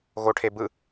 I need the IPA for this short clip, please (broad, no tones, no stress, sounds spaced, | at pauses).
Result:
ɣ o ʈʰ e b ɯ